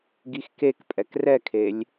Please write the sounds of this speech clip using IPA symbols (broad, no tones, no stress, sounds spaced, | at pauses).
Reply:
ɡ i x k e k pʼ ɛ k r ɛ kʰ e lʲ